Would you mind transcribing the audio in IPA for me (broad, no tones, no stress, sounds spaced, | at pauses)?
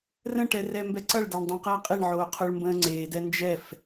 r ə̃ ʈ ɛ r ɛ m b ɛ ǀ ʌ ɭ d a ɳ dˤ õ q ʌː qʼ e ɳ ʕ oː qʰ o ɭ m b ə̃ː ŋ͡ǀ eː d ɛ n d͡ʒ ɛ f